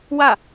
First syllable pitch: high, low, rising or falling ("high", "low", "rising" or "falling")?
falling